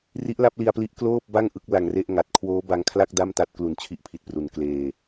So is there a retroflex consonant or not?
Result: no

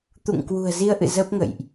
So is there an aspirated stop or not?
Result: no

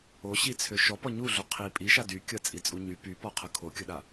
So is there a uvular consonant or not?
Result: yes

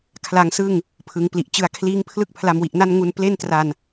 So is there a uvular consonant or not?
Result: no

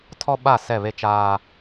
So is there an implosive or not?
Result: yes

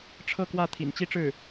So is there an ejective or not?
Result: no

